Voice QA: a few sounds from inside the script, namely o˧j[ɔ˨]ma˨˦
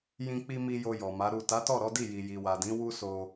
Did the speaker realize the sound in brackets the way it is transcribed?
yes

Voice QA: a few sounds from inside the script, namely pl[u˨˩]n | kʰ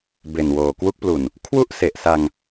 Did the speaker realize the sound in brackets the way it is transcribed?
yes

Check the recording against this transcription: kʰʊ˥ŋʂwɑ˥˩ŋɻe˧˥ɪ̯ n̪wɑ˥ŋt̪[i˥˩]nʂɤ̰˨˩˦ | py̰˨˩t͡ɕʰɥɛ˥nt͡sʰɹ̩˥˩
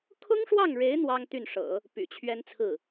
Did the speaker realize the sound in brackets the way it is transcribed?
no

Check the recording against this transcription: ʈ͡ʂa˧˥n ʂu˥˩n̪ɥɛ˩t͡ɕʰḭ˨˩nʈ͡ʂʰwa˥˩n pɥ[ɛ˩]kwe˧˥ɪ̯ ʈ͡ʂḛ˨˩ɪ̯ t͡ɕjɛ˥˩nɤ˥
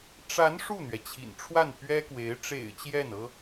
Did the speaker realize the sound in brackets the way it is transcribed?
no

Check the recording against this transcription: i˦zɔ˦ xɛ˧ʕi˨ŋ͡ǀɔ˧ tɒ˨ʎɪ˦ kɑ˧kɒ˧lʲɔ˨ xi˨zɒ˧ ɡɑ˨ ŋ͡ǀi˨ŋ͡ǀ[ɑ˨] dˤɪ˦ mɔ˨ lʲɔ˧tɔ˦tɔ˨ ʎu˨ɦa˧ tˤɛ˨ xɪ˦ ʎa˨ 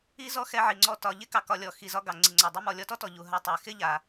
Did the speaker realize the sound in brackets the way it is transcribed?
yes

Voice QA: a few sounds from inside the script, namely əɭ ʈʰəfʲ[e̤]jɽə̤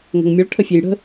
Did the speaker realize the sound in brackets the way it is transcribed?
no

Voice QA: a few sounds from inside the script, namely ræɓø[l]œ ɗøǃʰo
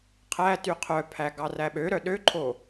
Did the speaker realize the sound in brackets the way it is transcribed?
no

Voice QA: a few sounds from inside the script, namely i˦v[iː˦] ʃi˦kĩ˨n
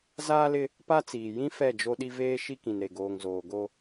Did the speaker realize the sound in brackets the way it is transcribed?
no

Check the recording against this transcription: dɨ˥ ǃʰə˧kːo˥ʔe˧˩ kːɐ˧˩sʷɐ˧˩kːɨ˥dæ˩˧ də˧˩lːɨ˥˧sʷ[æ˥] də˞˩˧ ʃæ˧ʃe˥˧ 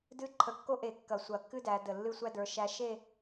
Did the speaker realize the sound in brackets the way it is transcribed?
yes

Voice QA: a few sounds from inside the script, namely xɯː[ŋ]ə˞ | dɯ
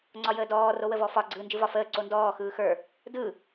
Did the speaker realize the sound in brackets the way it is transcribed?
no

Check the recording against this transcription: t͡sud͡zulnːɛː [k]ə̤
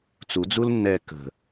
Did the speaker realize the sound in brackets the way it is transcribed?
yes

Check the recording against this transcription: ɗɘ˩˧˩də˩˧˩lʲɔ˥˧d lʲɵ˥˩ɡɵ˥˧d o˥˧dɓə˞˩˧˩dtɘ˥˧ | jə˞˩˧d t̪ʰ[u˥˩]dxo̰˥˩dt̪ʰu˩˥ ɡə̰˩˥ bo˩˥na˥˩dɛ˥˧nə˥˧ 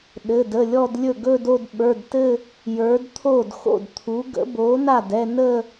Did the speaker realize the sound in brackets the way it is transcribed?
no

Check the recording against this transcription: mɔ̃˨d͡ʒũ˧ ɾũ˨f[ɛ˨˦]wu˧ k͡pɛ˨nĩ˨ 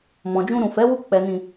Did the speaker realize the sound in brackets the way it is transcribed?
yes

